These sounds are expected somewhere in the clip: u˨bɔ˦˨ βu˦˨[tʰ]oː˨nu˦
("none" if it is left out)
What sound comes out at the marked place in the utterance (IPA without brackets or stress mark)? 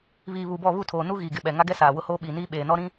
tʰ